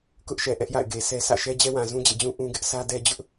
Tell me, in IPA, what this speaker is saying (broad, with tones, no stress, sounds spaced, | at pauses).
k ʊ˦ ʔ ʃ ɛ˨ ʔ ɛ˦ ʔ j a̰˦˨ ɪ̯ ɡ e˨ sʰ ɛ˦ s ä̰˦˨ ʃ ɛ˦ d͡ʑ ɛ˦ w ã˨ z ũ˦ d͡ʑ ḛ˦˨ d͡ʑ ũ˦ ʔ ũ˦ ɡ ɪ˦ ʔ sʰ ä˦ d ɛ˦ d͡ʑ ʊ˦ ʔ